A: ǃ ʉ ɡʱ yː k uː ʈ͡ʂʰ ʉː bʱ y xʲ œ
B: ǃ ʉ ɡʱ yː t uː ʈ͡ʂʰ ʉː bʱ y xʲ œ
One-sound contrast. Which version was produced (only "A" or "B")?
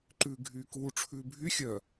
A